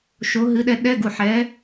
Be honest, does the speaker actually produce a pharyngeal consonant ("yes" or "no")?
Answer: yes